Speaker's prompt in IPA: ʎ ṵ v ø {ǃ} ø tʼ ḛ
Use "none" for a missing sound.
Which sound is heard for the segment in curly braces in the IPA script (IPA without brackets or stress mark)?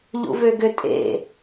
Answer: ɡ